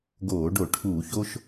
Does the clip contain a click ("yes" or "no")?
no